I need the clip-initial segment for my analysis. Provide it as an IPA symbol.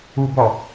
u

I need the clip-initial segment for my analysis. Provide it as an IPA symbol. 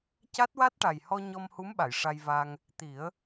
c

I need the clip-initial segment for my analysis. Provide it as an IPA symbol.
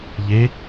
ʎ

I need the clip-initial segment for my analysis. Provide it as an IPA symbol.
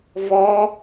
v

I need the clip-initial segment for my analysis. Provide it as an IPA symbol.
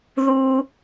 ð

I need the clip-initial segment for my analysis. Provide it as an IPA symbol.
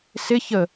s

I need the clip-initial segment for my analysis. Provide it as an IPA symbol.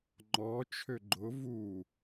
ŋ͡ǃ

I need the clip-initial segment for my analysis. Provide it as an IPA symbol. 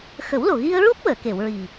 x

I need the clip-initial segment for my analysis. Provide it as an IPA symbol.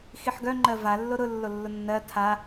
x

